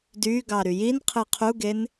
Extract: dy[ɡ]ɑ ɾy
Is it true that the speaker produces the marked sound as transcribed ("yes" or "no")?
yes